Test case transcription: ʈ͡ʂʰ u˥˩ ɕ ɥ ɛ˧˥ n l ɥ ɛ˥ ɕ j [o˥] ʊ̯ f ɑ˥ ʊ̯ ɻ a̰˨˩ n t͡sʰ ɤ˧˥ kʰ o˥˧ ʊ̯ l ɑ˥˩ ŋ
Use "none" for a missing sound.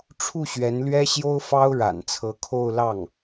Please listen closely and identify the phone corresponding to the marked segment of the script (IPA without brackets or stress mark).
o˥